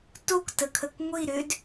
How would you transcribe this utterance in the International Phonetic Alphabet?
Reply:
t o k t ə kʰ ə k ŋʷ i ɾ ʏ d

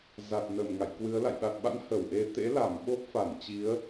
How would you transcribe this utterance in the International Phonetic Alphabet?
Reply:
z a˨˩ t̚ n ə˧˩ m ŋ a̰˧˨ j k w ɨ˨˦ ə̯ l a̰˧˨ j ɗ a˨˩ t̚ ɓ a̰˧˥ n h ə˧˩ w ʔ e˧ t̪ ḛ˧˥ l a˧˩ m ɓ o˦˥ p̚ f a˧˩ n t͡ɕ i˨˦ ə̯

